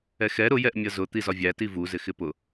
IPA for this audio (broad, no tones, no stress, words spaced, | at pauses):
ɛxɛ ɾʊ jɛʔmʲʌzʊ t̪izɒvʲæ tivu zɪxɪpʊ